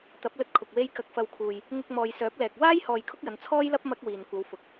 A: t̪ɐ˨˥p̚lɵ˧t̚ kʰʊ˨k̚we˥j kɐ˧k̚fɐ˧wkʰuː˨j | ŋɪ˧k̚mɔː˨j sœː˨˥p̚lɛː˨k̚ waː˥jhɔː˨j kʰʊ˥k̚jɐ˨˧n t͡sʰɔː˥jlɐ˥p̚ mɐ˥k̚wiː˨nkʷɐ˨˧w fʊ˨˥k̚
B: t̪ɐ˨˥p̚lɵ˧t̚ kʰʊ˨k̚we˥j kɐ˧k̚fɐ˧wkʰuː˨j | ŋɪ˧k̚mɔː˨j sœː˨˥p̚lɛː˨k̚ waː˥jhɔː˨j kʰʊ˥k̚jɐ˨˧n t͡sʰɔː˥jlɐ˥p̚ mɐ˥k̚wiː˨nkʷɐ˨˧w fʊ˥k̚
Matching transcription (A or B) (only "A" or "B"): A